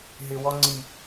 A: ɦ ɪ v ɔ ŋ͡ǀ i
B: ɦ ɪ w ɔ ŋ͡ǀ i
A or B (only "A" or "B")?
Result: B